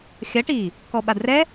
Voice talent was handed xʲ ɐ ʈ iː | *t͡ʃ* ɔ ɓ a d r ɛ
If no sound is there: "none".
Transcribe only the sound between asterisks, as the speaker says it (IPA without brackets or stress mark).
k